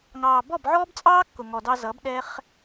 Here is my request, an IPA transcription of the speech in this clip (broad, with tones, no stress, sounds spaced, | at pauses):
ŋ ɑː˨ b ɔ˦˨ b ʕ ɔː˦ b t͡sʼ ɑː˦ kː ʊ˨ ŋ ɔ˨ d ɑ˧ z ʌ˨˦ b ɗ ɛ˦ χ